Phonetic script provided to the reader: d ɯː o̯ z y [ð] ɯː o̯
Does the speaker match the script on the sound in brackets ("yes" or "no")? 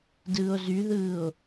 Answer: yes